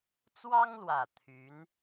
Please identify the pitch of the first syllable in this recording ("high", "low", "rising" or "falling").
high